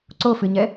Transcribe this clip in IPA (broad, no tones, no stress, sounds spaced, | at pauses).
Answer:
ǀ o f ɨ ɲ ɛ